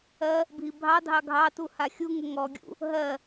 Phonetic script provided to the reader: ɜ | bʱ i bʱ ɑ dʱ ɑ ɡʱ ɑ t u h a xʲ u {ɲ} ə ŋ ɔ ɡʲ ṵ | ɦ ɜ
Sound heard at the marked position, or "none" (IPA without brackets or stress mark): ŋ